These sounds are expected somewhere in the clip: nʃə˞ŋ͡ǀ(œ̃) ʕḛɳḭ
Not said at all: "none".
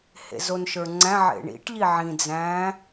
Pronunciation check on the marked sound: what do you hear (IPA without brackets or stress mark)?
æ̃